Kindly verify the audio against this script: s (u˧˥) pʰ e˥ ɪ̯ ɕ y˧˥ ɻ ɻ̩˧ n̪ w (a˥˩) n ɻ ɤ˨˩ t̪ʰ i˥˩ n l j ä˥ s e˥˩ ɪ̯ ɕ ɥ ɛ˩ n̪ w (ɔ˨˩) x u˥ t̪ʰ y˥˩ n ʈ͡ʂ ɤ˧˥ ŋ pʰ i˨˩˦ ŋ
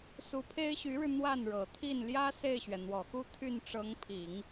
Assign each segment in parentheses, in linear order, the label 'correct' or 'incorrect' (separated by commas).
correct, correct, correct